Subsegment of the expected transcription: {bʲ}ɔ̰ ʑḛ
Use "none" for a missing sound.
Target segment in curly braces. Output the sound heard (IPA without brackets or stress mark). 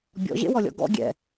bʲ